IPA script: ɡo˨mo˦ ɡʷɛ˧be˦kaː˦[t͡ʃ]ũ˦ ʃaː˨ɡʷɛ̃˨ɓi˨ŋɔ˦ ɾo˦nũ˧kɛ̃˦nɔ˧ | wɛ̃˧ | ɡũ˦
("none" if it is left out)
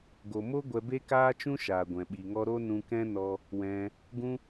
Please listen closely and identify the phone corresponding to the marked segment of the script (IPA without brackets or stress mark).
t͡ʃ